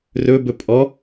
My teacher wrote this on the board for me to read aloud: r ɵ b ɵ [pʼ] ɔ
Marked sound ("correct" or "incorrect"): correct